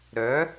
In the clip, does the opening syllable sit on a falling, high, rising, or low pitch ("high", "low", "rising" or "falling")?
rising